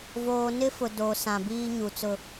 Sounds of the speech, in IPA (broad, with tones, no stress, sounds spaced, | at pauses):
v oː˨ n ɪ˦ f ʊ˨ d o˨ s ã˨ b iː˦ ɲ u˨ t͡s ʊ˦